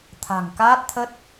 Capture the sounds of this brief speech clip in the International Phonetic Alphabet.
t̪ʰ a̤˨˩ ŋ k aː˦˥ t̚ t̪ʰ ə˦˥ t̚

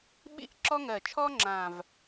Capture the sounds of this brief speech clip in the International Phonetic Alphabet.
ɓ ḭ˦ ʔ ǁ ɔ˦ ŋ ɜ˨˩ t͡ʃʰ ɔː˦ ŋ͡ǁ ã˨˩ v

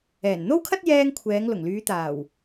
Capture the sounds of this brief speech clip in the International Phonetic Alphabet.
ɛː˨˩ n n̪ o˥ w kʰ ɐ˥ t̚ j ɛː˧ ŋ kʷʰ ɛː˨˧ ŋ l ʊ˨˩ ŋ l yː˨˧ t̪ aː˨˩ w

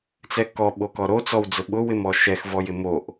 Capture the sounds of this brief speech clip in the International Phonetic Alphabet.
t͡s ɛ k ɔ ɓ o k ɔ ɾ o t͡s ɔ w d͡z ʊ ɓ ʊ w ɪ m ɔ ʃ ɛ x v ɔ j ɪ m o ʔ

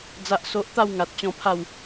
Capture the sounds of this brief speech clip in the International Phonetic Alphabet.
d͡z a˦ ʔ s o˦ ʔ t̪ a˥˧ w ŋ a˨ t̚ t͡ɕ ɔ̃˥˧ pʰ a˥˧ w

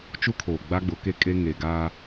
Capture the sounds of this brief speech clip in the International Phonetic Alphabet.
t͡ʃ u˦ kʰ oː˨ ɡ͡b a˦ ɡ͡b ʊ˨˦ k e˦ kʼ e˦ ŋ e˨ ɡ aː˦

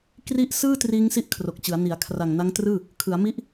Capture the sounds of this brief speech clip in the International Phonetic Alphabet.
k r i˦˥ ʔ s ɯː˥˩ t r iː˦˥ ŋ s i˦˥ ʔ kʰ r o˨˩ k̚ t͡ɕ ɯ˩˦ a̯ n i˩˦ a̯ kʰ r a˨˩ ŋ n a˦˥ ŋ t r ɯː˥˩ | kʰ ɯ˩˦ a̯ m i˦˥ ʔ

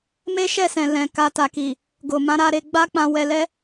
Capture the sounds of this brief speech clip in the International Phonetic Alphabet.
m e˦ ʃ ɛ˦˨ s ɛ̃˨ l ɛ̃˨ k a˧ t a˨ k i˨ | ɡ o˨ m ã˨˦ ɾ a˧ ɾ e˧ ɡ͡b a˦ k͡p ã˧ w ɛ˧ l ɛ˦

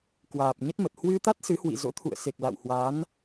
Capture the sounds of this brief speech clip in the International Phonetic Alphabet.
k w aː˨˩ p̚ ɲ ə˦˥ t̚ m ə˨˩ t̚ h w ɨ˧ t̪ a˦˥ t̚ s ɨ˨˦ h w ḭ˧˨ z o̰˧˥ t̪ʰ ṵ˧˨ ə̯ s e˨˩ k̚ l a̰˧˨ w h w a˨˦ n

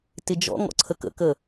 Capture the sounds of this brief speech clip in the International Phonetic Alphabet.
t ɪ d͡ʒ ɔ̰ ŋ ɔ̰ ǀʰ ə k ə̰ k ə

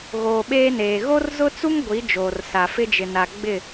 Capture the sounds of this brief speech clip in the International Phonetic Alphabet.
ɣ oː˨ ɓ eː˦ n eː˨ ɣ o˦ r z ʊ˦ t͡s u˦ ŋ ɡʷ i˨˦ d͡ʒ oː˨ r s a˨ f ɪ˦ d͡ʒ ɪ˨ n a˨ ɡ͡b ɪ˦˨

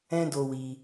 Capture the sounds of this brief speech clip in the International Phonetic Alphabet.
ɛ̃˦ d o˧ w i˧

